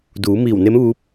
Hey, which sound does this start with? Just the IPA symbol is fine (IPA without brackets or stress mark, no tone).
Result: d